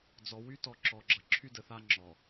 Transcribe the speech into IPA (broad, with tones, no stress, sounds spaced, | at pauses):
d͡z ɔ˨ w y˦ t ɔ˨ ǁ ɔ˨ ɡ͡ǁ ʌ˨ ǁʰ y˦ d ə˨ θ a˦ ŋ͡ǁ ɔ˨